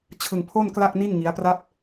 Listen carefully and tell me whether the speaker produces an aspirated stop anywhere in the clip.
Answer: yes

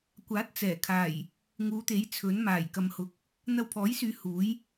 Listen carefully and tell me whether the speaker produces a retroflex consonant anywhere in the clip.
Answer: no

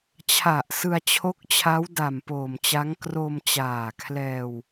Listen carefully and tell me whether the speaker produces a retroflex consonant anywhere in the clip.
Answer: no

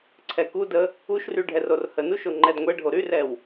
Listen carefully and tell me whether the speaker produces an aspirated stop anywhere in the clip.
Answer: yes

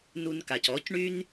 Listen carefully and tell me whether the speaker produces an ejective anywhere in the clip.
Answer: no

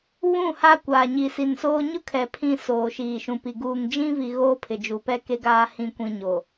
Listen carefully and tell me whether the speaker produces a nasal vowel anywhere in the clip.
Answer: yes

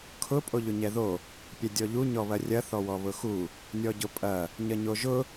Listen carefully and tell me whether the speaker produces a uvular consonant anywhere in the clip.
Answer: no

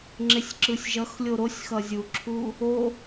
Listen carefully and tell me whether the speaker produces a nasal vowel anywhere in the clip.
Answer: no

